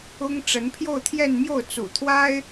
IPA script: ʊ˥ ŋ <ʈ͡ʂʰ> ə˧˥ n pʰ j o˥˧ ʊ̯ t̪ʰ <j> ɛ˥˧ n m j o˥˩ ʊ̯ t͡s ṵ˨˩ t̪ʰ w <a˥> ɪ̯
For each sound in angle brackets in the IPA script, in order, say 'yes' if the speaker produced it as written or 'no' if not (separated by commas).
no, yes, yes